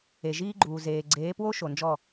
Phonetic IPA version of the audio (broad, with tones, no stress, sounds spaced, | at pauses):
e˩ ʒ iː˥ ɡ͡ǃ uː˩ z eː˩ ɡ͡ǀ eː˩˥ p w o˥ ʃ o˩ n d͡ʒ ɔ˥˩